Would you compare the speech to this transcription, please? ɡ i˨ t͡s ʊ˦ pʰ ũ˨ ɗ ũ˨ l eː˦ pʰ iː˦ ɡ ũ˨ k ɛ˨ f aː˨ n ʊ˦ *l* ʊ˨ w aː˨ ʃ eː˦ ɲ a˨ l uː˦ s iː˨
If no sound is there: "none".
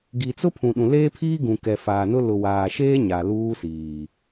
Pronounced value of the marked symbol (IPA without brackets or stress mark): l